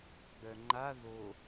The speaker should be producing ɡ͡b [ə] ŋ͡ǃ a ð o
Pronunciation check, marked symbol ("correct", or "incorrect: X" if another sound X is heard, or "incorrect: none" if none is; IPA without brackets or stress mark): incorrect: œ